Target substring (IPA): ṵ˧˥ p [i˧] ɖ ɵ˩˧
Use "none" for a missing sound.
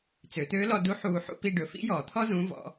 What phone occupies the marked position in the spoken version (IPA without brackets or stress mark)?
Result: i˧